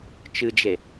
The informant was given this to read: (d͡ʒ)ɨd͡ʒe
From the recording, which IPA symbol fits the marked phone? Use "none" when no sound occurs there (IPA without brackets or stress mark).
t͡ʃ